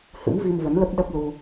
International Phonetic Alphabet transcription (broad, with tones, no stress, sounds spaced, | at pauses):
h ɨ̰˧˥ m v i˧ m v ə˨˦ n l ə˦˥ p̚ ɗ ə˦˥ p̚ l u˧